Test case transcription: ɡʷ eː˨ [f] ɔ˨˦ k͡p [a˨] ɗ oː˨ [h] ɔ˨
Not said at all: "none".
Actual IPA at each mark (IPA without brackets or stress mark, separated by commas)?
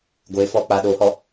f, a˨, h